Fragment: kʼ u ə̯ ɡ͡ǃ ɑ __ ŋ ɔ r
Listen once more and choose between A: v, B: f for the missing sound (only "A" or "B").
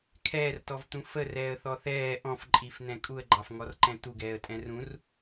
B